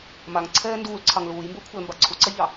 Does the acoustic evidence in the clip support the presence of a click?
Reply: yes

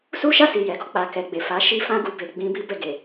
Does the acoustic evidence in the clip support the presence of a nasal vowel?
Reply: yes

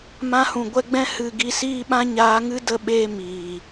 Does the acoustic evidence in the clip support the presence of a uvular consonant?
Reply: no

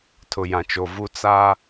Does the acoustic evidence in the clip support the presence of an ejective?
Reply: no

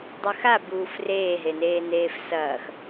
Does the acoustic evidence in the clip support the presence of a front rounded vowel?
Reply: no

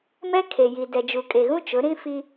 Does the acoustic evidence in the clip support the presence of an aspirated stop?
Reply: yes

